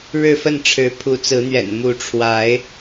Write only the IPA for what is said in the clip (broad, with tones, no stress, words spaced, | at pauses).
ɻɻ̩˥˨fə˥˨nʈ͡ʂʰɻ̩˨˦ pʰu˨˦t͡sɹ̩˨˦n̪ɥɛ̰˨˩n mu˨˦ʈ͡ʂʰwa˨˦ɪ̯